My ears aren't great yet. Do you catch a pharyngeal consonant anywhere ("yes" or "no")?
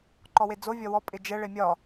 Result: no